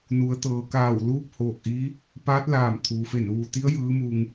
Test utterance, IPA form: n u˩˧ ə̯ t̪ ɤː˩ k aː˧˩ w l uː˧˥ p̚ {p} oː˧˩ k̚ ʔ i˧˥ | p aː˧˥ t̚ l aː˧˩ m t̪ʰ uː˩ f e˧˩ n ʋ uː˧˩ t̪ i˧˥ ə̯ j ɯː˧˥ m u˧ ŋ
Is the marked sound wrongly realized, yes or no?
yes